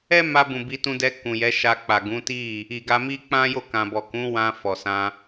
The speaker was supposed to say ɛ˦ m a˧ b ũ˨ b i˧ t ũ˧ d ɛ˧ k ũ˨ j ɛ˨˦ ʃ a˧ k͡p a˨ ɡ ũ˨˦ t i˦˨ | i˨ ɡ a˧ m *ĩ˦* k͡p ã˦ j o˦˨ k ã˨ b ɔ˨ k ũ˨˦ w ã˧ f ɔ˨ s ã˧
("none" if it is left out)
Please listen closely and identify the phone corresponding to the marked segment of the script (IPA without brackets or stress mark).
i˦